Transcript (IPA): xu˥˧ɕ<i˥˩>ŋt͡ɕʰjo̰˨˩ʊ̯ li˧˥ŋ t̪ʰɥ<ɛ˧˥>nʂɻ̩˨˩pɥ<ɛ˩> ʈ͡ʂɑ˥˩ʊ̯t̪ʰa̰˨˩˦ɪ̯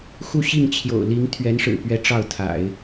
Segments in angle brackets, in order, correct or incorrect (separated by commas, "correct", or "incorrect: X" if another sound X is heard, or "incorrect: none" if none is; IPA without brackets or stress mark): correct, correct, incorrect: ɛ˧˥